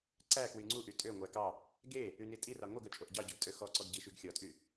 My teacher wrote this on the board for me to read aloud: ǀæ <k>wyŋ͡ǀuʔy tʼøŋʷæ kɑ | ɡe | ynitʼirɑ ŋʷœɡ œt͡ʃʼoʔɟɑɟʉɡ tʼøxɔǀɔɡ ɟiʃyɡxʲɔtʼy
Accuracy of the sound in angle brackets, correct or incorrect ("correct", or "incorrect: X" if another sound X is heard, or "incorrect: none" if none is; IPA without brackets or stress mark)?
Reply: correct